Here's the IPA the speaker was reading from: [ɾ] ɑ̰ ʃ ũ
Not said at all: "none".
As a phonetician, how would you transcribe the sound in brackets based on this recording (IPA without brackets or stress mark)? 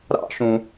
ɾ